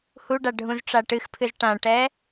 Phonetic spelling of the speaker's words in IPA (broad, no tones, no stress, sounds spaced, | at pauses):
h u ɖ a ɖʱ ũ z ʈ͡ʂ a ʈ ɨ x pʰ ɨ z ʈ ã ʈ ɛ